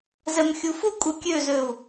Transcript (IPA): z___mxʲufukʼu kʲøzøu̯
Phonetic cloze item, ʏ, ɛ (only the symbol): ɛ